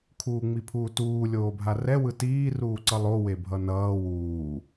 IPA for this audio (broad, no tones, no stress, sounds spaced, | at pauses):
kʰ uː ŋ͡m i pʰ uː t uː lʲ oː bʱ a r ɛ w ɯ t iː r uː ǀ ʌ lˠ o w e bʱ ʌ n ʌː w uː